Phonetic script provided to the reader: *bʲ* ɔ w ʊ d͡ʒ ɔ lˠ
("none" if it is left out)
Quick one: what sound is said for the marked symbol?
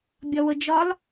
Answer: bʲ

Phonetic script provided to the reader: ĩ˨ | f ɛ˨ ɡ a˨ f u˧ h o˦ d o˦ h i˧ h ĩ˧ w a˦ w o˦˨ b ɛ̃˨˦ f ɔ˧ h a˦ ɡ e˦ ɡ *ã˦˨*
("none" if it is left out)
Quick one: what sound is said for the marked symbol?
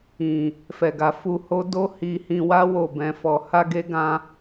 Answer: ã˧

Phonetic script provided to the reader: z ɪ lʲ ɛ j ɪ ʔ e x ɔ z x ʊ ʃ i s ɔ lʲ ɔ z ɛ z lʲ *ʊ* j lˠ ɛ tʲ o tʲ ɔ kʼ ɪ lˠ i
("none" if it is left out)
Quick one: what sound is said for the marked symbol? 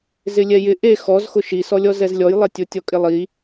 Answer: ɔ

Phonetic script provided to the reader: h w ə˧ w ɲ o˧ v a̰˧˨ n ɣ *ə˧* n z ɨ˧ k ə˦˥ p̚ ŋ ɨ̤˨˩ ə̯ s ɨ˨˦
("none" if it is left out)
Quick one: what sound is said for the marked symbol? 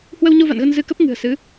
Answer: ə˧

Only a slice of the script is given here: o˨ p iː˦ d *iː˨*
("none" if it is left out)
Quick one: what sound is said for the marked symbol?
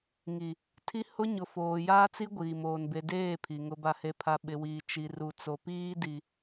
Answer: i˨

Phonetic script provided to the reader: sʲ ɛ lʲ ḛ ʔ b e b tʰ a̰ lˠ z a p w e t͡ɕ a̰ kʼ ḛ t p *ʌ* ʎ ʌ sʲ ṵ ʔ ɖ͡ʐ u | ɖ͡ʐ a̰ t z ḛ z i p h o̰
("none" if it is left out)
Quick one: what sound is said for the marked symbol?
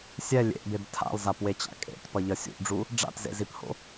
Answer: ʌ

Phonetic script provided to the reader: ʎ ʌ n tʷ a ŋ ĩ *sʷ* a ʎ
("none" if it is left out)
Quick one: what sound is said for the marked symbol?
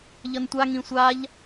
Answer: sʷ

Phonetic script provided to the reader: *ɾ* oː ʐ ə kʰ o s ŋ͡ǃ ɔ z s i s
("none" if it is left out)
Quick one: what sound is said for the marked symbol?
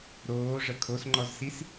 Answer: ɾ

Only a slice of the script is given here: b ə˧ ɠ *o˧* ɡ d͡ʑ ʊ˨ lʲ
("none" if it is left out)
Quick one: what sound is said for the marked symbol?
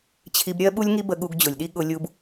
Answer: u˧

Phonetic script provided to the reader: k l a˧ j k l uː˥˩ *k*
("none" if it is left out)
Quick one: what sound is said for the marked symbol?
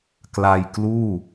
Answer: none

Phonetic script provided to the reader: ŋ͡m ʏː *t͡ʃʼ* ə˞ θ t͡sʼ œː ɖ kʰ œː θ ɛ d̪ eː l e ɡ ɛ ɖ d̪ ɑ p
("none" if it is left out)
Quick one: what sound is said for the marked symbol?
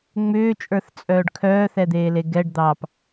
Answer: t͡ʃʼ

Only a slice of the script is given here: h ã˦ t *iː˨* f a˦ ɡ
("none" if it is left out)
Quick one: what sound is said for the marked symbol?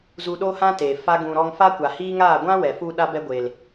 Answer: eː˨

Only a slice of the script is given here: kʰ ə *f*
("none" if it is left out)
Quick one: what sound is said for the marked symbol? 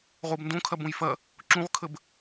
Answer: b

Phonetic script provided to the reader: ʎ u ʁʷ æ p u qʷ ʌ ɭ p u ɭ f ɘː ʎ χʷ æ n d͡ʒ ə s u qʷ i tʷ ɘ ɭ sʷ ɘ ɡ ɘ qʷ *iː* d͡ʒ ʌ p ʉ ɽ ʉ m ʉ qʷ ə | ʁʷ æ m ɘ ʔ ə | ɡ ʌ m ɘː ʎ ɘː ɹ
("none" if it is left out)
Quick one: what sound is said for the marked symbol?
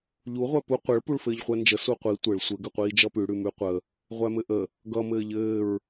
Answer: iː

